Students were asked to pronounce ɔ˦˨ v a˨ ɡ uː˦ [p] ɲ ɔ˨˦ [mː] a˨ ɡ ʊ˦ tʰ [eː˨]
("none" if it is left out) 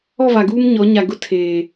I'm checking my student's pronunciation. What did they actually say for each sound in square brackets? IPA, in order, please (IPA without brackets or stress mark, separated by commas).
m, ɲ, eː˨